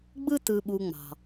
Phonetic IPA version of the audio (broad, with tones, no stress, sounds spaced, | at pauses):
ɡ͡b ɯ˥ t ɯ˨ ɓ u˨ ŋ͡m ɑ̤˩